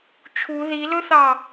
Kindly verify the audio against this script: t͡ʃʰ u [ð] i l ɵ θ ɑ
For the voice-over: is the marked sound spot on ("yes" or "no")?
yes